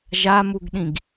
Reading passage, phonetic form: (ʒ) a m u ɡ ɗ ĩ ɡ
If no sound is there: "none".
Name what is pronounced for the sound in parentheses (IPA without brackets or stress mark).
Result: ʒ